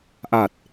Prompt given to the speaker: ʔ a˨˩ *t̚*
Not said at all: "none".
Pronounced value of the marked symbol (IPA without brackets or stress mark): t̚